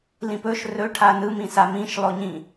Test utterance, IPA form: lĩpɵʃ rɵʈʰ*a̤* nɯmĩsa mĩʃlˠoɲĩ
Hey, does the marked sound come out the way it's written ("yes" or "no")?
no